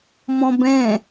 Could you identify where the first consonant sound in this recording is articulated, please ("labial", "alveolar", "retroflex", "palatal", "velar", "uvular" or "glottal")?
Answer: labial